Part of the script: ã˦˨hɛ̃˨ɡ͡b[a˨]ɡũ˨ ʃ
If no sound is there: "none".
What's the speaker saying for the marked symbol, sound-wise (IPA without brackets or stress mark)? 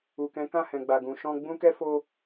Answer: a˨